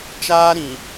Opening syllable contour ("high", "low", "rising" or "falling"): high